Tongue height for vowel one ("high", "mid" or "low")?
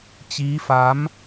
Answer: high